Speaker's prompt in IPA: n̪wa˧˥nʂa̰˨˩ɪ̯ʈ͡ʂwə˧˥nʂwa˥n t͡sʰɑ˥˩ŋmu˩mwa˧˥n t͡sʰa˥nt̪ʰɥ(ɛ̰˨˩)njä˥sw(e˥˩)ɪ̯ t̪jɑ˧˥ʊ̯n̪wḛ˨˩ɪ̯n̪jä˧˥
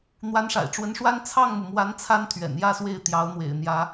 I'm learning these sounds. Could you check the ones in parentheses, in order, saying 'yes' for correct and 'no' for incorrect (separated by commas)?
yes, yes